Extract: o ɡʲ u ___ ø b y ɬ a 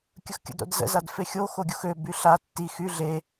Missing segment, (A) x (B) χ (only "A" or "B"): A